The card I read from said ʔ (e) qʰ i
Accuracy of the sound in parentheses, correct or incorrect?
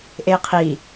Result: correct